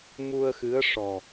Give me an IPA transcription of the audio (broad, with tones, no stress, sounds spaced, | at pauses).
m u˧ ə̯ x ɨ˧˥ ə̯ ʂ ɔ˨˩